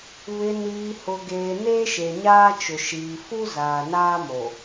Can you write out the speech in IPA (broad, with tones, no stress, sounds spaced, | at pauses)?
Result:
β ɪ˨ n iː˨ h ʊ˨ ɡ eː˨ n eː˦ ʃ e˨ ɲ aː˦ t͡ʃ ʊ˨ ʃ iː˨ f u˦ z aː˨ n aː˦ m o˨